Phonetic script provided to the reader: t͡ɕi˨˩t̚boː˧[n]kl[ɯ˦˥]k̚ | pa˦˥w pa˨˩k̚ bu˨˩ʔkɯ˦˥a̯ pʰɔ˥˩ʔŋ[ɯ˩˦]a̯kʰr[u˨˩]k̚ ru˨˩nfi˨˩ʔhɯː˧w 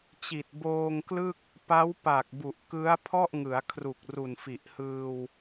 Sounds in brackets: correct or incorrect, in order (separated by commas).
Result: incorrect, incorrect, correct, correct